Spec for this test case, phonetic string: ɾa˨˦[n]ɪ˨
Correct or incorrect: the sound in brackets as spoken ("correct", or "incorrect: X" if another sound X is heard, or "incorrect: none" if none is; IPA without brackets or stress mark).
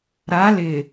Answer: incorrect: l